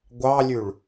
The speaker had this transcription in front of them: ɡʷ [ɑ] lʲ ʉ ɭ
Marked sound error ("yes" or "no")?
no